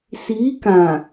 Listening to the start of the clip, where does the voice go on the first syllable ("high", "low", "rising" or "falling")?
rising